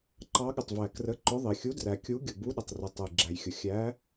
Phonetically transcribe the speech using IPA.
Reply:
ǃ ɑ˨˥ ɠ ɪ˩ tˤ v æ˩ k r ə˨˥ ǃ ʊ˨˥ ðˤ i˩ xʲ u˨˥ d r æ˩ kʲ u˨˥ ɡʲ ʊ˩ b u˨˥ ɗ ɪ˩ tˤ r ʊ˩ tˤ ə˩ j ɡ͡ǁ æ˩ j xʲ ʊ˩ xʲ æ˨˥

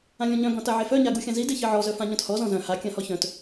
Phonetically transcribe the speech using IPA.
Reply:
ã lʲ ɔ̃ ɲ œ̃ ɡ ɔ̃ t a ʕ e f œ ɲ a ɡ u xʲ ã z i d e ç i ʕ ɔ z œ f ã ɲ œ̃ t h ɔ z ɔ̃ z œ̃ h a kʲ ã h ɔ ç œ̃ t

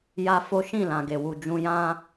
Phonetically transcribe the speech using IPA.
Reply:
j a˦ f o˦ ʃ ĩ˦˨ l ã˨ ɡ e˨ w u˨ d͡ʒ ũ˧ j ã˦

